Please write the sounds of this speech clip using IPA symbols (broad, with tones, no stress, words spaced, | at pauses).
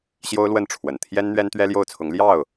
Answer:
ɕjo˥ʊ̯lwə˥˩n ʈ͡ʂʰwə˨˩n t̪ʰjɛ˥n n̪ɥɛ˥nt̪ɥɛ˥ljo˥˩ʊ̯t͡sʰʊ˧˥ŋ ljɑ˥˩ʊ̯